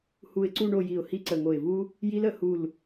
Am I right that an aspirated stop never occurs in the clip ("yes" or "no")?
yes